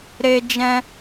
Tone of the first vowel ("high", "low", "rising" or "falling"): high